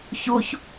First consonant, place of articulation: palatal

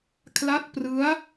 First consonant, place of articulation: velar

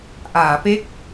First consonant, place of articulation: glottal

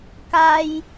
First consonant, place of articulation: velar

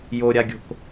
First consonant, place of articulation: palatal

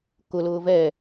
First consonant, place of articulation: velar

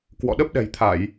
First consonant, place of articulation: velar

